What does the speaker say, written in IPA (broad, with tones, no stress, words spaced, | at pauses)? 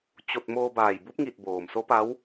t͡ɕo˧t̚ moː˧baː˧˩j bu˧˥p̚ŋi˧˩t̚ boː˩mso˧˥pa˧˥w